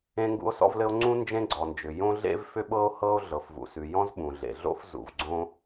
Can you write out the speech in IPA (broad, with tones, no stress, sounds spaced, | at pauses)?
ẽ˥ ŋ ɡ ṵ˥ o̯ s ɔ̰˥ v l ɘ˥ o̯ ŋ͡ǀ ũ˥ n d͡ʒ ẽ˥ ɡ͡ǀ ɔ˩ n d͡ʒ ʏ˩ j õ˥ ɮ ḛ˥ v f ʏ˥ ɓ ɤ˥ o̯ h ɤ˥ o̯ ɮ ɤ˩ f v ṵ˩ s ʉ˩ j ɔ̃˥ z ɓ ũ˩ ɮ ḛ˩ ɮ o̰˥ f z ṵ˩ v ɡ͡ǀ õ˥